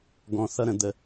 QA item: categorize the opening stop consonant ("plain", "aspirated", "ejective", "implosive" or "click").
plain